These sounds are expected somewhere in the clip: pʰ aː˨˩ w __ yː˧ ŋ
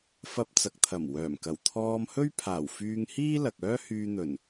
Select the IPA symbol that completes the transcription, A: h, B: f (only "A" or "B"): B